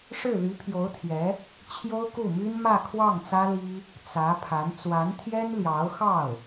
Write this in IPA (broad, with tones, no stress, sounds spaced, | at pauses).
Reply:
ʂ ɻ̩˥˩ l y˧˥ pʰ j o˧˥ ʊ̯ t̪ʰ j ɛ˧˥ | t͡ɕʰ j o˥ ʊ̯ k u˥˩ m y˥ n m ä˥˧ kʰ w ɑ˥˩ ŋ t͡s ä˥ l i˥ | t͡s ä˧˥ pʰ a˧˥ n t͡s w a˧˥ n t̪ʰ j ɛ˥ n l j ɑ˧˥ ʊ̯ x ɑ˥˩ ʊ̯